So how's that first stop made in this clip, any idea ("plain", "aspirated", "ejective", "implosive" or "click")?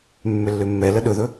implosive